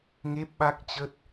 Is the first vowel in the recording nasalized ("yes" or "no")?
no